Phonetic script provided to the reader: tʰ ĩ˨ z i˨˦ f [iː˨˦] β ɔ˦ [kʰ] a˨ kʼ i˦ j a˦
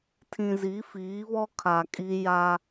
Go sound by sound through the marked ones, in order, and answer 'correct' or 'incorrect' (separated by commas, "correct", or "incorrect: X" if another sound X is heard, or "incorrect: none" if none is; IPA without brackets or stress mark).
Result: correct, correct